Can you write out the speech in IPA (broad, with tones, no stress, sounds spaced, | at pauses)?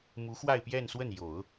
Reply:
m u˧˥ x w a˥˧ ɪ̯ p j ɛ˥˧ n s w ə˥˩ n j o˨˩˦ ʊ̯